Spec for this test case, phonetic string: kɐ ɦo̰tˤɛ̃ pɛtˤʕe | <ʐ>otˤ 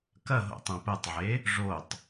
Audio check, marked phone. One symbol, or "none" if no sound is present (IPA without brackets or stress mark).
ʐ